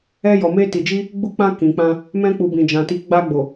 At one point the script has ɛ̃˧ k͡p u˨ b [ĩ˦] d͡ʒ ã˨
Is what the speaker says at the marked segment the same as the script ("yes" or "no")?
no